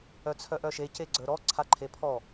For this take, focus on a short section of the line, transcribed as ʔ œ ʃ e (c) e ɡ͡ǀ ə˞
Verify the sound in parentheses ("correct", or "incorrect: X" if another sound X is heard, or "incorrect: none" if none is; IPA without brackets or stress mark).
correct